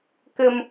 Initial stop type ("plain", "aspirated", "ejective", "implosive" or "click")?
plain